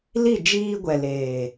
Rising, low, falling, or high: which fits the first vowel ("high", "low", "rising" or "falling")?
falling